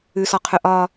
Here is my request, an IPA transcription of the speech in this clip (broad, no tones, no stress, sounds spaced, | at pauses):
ʉ s ɔ qʰ ʉ ʔ ɒ